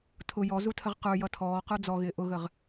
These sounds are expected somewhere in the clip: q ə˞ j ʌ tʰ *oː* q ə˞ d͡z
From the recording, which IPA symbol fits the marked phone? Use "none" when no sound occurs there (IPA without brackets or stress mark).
ɔː